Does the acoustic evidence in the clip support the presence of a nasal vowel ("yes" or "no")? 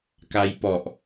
no